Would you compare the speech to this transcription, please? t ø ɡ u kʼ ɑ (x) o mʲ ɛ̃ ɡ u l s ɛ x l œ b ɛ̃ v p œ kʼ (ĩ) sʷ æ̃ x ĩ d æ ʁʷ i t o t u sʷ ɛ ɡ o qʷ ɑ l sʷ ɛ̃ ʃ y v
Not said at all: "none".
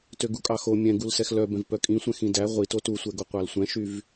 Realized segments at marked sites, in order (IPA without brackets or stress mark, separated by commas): x, ĩ